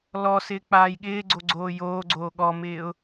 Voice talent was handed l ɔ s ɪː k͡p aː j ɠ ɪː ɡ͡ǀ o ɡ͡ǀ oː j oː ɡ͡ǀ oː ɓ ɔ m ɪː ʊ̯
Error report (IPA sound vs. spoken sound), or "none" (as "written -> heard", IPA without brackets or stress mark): ɓ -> ɠ